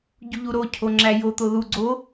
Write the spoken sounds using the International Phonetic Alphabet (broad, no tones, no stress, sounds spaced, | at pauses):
ɟ u ʎ u ɾ o cʰ o ŋ͡ǁ æ j o t̪ o ð u ɡ͡ǀ o